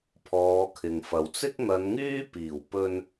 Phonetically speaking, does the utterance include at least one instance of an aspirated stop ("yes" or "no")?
yes